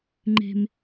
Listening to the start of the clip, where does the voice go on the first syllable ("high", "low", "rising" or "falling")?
low